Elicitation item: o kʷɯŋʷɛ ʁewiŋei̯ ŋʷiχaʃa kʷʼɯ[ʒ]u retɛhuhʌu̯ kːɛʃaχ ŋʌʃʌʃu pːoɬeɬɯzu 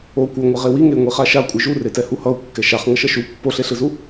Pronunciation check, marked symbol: correct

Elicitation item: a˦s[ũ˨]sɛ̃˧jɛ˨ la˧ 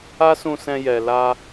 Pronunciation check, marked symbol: incorrect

